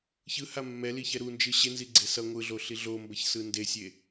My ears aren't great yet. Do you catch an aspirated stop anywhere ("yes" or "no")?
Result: no